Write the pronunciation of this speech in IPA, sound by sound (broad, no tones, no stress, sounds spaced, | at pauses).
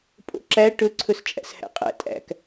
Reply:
pʼ o̰ ǁ æ ʈ ɵ ǀʰ ɵ s t͡ʃʼ æ̰ s h æ̰ qʼ æ̰ tʼ æ̰ k